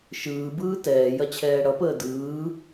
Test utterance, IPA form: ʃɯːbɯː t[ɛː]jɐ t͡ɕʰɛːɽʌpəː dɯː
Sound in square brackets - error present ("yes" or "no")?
no